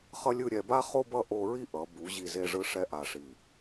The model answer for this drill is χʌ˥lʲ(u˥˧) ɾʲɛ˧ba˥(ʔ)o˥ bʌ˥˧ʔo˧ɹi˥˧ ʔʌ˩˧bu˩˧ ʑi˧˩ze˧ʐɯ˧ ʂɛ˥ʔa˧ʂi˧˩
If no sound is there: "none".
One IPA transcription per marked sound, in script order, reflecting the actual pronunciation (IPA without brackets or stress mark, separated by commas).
ɯ˥˧, χ